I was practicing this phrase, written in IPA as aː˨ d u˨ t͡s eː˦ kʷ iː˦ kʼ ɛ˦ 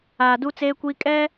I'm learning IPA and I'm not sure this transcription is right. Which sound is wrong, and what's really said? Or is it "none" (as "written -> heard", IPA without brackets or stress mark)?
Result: u˨ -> u˦